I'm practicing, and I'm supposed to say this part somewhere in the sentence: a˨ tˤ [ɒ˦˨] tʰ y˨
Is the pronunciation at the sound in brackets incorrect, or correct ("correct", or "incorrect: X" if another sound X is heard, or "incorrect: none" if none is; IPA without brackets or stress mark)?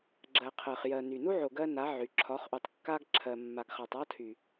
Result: incorrect: ɒ˦